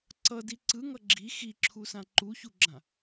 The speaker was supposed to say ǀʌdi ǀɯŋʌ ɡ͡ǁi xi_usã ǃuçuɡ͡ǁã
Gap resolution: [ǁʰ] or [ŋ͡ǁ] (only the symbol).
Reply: ǁʰ